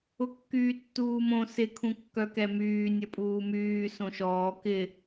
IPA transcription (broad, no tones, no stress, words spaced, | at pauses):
ʊkːyːtːuːmõ sɪ kʰũkːœkɛmyː nʲɐpʼuːmyː sõʃɔː kɪ